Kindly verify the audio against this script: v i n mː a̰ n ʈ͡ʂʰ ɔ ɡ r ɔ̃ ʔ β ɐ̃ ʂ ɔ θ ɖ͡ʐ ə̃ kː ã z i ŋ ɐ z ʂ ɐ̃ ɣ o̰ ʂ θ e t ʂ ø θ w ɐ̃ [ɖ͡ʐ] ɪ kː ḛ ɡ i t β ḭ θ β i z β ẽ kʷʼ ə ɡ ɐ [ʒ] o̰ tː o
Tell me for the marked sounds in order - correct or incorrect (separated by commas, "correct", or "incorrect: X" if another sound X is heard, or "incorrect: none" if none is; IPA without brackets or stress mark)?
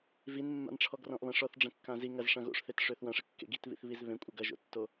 incorrect: ʂ, correct